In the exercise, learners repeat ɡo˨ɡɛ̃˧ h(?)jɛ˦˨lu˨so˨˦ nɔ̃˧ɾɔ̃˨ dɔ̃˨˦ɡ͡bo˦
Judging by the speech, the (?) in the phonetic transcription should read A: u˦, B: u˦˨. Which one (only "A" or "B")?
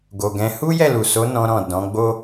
A